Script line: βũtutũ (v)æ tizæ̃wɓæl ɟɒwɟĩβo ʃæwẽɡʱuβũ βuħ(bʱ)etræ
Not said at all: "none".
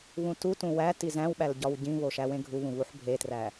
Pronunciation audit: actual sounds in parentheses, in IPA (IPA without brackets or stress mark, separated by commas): w, bʱ